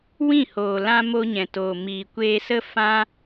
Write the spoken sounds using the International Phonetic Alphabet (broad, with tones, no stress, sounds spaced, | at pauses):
w ĩ˦˨ h oː˨ l ã˧ m o˧ ɲ ɛ̃˨ t oː˨ m iː˨ kʷ eː˧ s ə˦ f ã˦